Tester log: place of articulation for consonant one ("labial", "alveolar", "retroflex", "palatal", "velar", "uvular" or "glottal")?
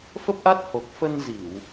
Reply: labial